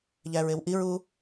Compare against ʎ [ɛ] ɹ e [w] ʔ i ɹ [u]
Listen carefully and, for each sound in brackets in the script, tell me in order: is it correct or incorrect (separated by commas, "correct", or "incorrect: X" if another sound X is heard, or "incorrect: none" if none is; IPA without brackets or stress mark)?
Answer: incorrect: æ, correct, correct